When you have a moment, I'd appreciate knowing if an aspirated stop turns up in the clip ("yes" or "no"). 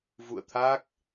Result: yes